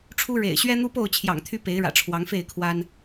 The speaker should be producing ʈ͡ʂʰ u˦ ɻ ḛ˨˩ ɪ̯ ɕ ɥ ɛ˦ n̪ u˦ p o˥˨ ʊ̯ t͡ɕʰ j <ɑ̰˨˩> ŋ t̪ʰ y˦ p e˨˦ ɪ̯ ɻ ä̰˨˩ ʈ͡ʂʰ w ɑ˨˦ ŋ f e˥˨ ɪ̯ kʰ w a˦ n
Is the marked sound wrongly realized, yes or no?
no